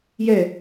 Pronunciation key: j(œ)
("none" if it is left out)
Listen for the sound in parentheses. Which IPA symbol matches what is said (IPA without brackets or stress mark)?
ɛ